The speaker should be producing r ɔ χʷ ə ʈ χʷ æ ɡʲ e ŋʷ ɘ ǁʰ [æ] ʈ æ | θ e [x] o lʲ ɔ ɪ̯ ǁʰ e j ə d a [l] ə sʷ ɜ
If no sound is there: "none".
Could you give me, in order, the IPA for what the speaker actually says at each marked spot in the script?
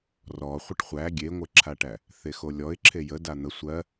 a, x, n̪

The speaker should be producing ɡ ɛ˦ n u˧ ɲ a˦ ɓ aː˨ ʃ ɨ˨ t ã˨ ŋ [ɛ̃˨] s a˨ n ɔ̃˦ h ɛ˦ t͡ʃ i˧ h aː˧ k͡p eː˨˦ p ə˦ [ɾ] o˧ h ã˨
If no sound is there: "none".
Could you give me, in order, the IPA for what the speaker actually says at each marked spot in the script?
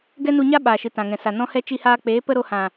ɛ̃˨, ɾ

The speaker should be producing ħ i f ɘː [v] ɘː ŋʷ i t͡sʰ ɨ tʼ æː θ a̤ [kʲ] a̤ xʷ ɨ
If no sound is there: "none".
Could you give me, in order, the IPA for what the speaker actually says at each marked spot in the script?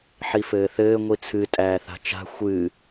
θ, t͡ʃ

